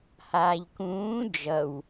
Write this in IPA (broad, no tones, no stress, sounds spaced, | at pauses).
h aː ʎ k ũː d͡ʒ ʌ w